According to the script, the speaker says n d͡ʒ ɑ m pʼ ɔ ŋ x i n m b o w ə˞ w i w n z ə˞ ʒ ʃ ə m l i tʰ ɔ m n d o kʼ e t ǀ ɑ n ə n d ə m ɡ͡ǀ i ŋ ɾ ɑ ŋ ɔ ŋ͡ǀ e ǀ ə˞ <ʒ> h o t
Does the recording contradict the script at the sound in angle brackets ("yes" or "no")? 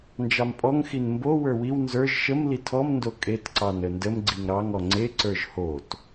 no